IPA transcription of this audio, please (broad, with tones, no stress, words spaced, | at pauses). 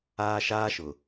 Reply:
aː˦ʃaː˦ʃʊ˨